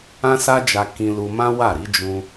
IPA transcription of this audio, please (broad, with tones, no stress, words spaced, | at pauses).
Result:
ã˦sa˦d͡ʒa˧ kĩ˧lu˧mã˦ wa˦˨ɾi˨˦ d͡ʒũ˧